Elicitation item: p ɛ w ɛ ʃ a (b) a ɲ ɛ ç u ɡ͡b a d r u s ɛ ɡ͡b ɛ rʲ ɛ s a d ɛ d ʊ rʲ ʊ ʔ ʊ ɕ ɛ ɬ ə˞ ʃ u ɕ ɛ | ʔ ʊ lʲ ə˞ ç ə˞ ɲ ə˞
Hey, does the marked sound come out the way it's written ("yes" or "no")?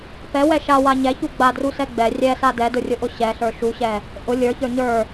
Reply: no